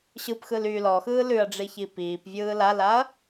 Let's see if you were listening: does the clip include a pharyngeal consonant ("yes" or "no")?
no